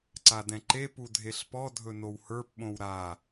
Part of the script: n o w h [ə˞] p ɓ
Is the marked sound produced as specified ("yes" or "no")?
yes